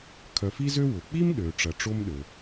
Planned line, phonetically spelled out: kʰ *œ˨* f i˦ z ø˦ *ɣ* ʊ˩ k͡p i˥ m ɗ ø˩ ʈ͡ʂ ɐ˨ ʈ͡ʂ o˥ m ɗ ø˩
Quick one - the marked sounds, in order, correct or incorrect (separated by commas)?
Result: correct, incorrect